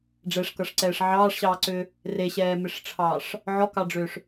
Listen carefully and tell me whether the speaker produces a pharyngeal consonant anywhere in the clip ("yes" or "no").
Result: yes